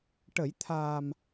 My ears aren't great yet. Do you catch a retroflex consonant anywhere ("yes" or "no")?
yes